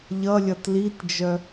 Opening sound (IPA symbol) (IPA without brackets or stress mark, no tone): ʎ